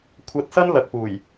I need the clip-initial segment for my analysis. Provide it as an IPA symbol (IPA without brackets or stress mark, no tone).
kʷʰ